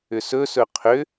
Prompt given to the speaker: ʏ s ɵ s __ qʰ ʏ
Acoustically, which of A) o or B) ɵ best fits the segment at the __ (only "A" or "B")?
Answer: B